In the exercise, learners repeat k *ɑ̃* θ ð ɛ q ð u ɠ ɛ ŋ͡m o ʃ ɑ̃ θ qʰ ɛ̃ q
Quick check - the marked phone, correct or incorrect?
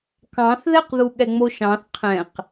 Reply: correct